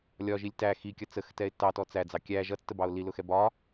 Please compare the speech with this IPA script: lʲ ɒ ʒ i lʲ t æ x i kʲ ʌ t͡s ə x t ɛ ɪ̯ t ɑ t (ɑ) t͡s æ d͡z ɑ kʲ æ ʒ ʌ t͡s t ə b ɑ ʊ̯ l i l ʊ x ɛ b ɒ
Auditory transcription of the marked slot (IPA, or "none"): ɔ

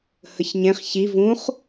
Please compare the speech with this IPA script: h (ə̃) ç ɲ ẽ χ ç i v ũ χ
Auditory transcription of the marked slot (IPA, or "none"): ə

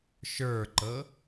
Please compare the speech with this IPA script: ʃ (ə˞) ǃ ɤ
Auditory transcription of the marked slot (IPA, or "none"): ə˞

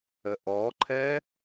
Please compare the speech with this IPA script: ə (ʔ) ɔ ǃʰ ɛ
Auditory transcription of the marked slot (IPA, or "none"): ʔ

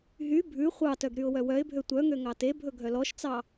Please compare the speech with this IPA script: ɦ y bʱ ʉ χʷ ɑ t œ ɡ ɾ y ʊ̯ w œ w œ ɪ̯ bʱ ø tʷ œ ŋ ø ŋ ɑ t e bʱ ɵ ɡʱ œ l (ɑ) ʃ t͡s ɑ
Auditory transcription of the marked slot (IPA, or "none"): ɔ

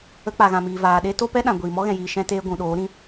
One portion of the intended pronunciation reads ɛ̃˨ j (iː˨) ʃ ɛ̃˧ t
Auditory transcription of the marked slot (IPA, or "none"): iː˨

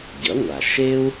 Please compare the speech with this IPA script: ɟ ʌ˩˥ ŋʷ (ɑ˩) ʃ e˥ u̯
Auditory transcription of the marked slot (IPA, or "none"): a˩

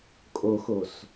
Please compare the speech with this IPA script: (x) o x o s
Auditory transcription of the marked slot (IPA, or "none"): kʼ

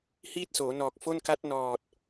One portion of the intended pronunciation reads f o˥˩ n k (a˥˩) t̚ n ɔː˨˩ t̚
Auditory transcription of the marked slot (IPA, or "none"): a˦˥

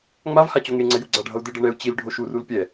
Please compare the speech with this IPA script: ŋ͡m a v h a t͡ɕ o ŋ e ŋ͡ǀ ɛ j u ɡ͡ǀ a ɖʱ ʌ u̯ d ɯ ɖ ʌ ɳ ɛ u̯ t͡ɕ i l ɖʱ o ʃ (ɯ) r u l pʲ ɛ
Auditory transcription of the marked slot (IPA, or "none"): u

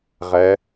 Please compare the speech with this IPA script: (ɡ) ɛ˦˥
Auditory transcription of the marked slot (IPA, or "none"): ʁ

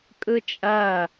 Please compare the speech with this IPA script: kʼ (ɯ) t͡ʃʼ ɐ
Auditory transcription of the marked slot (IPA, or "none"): ɯ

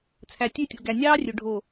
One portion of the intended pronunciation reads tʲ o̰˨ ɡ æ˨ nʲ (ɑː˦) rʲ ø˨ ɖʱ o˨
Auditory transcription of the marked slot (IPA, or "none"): ɑː˦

